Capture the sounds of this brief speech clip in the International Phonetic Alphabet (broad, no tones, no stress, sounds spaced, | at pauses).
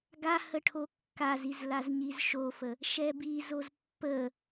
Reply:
ɡ a h ə ʈʰ o kː a z i z l a z ɲ i z ʃ o f ə | ʃ ɛ b i z o z pː ə